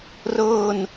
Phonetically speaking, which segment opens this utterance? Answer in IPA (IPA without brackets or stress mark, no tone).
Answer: r